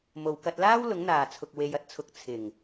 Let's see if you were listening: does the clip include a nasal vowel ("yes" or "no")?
no